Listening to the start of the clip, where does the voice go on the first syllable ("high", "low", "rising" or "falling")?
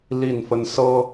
falling